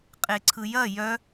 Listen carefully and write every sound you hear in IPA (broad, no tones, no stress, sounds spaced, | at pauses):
qʼ e ǀʰ ɯ j ɐ j œ